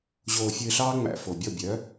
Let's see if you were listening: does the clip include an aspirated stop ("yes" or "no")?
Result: no